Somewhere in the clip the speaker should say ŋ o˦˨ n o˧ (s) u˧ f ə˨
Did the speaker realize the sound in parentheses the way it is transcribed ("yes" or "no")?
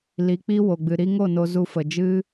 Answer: no